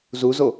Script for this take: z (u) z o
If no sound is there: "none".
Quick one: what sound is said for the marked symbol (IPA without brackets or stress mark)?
u